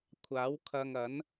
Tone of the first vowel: rising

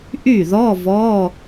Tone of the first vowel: falling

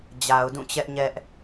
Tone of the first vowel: low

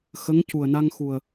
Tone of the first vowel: rising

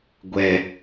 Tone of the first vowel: low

